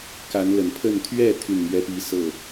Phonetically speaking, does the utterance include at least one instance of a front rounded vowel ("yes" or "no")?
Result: yes